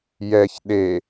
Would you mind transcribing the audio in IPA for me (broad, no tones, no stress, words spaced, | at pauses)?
jɛç ɗe